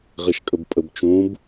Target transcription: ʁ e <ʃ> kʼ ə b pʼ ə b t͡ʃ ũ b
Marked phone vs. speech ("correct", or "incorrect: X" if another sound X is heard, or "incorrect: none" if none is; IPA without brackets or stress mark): correct